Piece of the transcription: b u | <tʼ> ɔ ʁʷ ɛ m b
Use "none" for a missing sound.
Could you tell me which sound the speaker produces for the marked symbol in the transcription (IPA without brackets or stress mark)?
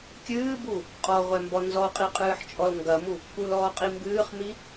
qʼ